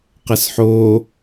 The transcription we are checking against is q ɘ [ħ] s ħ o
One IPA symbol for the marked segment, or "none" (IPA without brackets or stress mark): none